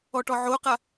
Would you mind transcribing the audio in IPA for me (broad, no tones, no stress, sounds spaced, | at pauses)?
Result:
ɔ ʈ ɔ ʕ o q a